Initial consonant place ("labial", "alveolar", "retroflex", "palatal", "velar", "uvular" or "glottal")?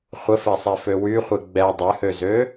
uvular